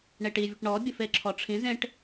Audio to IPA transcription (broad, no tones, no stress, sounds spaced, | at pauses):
ɳ e ʈ i vʲ ʊ ʈ ɳ ɔ bʲ ʊ f e ǁʰ ɔ ʈ͡ʂʰ ĩ z ẽ ʈ